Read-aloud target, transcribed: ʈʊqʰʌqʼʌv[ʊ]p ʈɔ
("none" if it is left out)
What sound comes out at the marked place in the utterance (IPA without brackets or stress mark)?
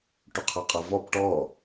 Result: ɔ